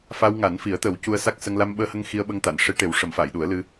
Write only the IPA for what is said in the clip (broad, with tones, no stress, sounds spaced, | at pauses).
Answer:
f a˧ w ŋ a˨˩˦ n f i˨˩˦ ə̯ t̪ ə˨˩˦ w c u˧ ə̯ s a˦˥ k̚ s ə˧ ŋ l a˧ m ɓ əː˧ h ə˧ ŋ x i˧ ə̯ ɓ ə˧ ŋ t̪ a˨˩˨ n ʂ e˧˥ ʈ e˨˩˦ w ʂ ə˨˩˦ m f a˨˩˨ j ɗ u˨˩˦ ə̯ l ɨ˧